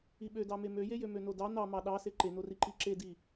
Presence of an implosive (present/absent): present